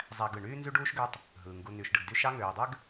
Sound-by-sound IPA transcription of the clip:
zˤ æ˨ ɡ ɯ˩ ɳ yː˦ n z y˦ ɖ uː˥ ʃ ɡ ø˦ tˤ | ɦ ɯː˩ ŋ ɡ u˨ n y˨ ʃ ɖ ɯ˨ ɡ d y˦ ʃ ɑ˦ ŋ øː˨ dˤ ø˥ ɡ

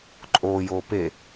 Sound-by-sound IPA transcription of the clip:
ǃʼ oː j oː p e

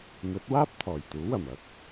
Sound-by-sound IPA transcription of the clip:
m ɵ˨˥ t̚ w aː˥ p̚ t̪ʰ ɔː˨˩ j t̪ uː˨˥ w ɐ˨˩ m ɐ˥ k̚

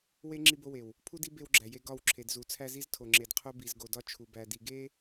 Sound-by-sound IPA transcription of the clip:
w e˦ ŋ͡ǁ i˦ b o˦ w e˨ w | pʰ u˦ d i˦ b e˦ w ɡ͡ǁ æ˨ j e˦ ɡ ɒ˦˨ w ǁʰ e˨ d z u˨˦ t͡sʰ æ˦ z i˦ z tʰ o˨ ŋ͡ǁ e˨ d qʰ o˦ b i˨ z ɡ o˨ d ɒ˦ t͡ʃʰ u˨ b æ˨ d i˨ ɡ e˦

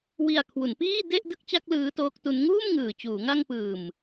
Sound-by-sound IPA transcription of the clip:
w i˨˩ a̯ kʰ w u˩˦ n p iː˥˩ d e˥˩ ʔ d ɯ˥˩ k̚ t͡ɕ a˥˩ k̚ l ɯː˦˥ t oː˦˥ k̚ t u˦˥ n ŋ uː˥˩ m ŋ ɯː˨˩ t͡ɕ uː˩˦ ŋ a˧ ŋ p ɯː˨˩ m

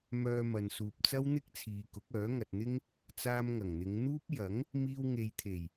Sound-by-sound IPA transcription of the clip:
m œː˧ m ɐ˨ n s uː˨ p̚ t͡s ɐ˥ w n̪ ɪ˥ k̚ t͡sʰ iː˨ k ʊ˨˥ k̚ œː˨˥ ŋ ɐ˨ t̚ n̪ ɪ˥ ŋ | t͡s aː˧ m ŋ ɐ˨˩ ŋ n̪ ɪ˨˧ ŋ n̪ uː˥ p̚ j ɐ˨˥ ŋ | m iː˧ w ŋ e˨ j t̪ʰ e˨˩ j

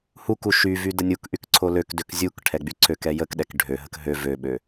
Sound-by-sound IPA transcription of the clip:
h u k u ʃ y v y d ə nʲ u k ʔ y k ǀʰ o l ø k d ø k zʲ u k ʈʰ ɛ ɡ͡b y ǀʰ ø k ɛ j ə k ɗ ɛ k ɖʱ ø ɦ ə k ɦ ø v ø ɓ ø

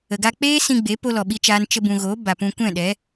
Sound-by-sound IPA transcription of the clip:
ə˨ ɡ a˧ k͡p eː˦ s ĩ˧ ɡ͡b e˨˦ p o˦ l ɔ˨ ɓ i˦ t͡ʃ aː˦ n t͡ʃ ə˧ b ũ˨ ɣ oː˨˦ b a˨ p ũ˧ kʷ ɛ̃˦˨ ɗ ɛ˨˦

